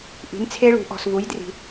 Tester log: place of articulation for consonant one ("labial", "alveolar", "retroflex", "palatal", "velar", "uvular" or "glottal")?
glottal